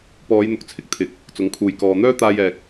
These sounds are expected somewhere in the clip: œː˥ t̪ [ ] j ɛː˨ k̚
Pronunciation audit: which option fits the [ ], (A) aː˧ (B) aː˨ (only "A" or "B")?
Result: A